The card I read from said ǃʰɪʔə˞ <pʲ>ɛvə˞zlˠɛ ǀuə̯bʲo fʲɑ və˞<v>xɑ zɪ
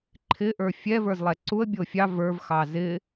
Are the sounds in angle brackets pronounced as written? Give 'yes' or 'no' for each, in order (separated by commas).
no, yes